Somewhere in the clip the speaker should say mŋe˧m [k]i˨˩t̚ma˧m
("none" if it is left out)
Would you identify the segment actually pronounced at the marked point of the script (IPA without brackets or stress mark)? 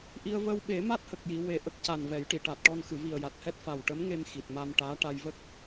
x